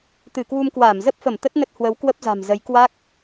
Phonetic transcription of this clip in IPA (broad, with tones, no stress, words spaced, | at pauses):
t̪ɨ˧˩kwu˧mkwaː˧˩m zə˦˥p̚fə˧˩m t̪ə˦˥t̚nə˦˥t̚hwə˨˦w kwə˦˥p̚za̤˨˩mzə˨˦j kwa˦˥k̚